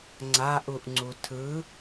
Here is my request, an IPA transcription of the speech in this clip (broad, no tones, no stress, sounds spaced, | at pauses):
ŋ͡ǀ a ʔ u ʔ ŋ͡ǀ u tʰ ɯ